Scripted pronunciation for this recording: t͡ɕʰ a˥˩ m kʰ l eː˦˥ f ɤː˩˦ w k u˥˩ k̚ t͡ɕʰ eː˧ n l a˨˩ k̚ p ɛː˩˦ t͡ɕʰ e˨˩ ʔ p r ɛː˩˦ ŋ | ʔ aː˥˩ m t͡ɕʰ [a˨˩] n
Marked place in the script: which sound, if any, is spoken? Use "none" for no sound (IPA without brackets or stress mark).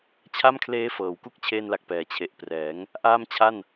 a˥˩